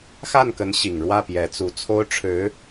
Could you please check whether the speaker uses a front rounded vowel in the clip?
no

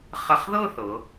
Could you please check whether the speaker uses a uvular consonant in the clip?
yes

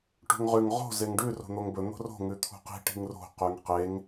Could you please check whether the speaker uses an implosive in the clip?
no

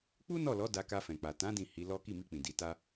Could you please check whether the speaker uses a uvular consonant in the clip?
no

